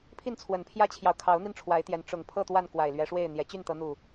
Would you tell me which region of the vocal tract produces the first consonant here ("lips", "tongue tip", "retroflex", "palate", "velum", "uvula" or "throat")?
lips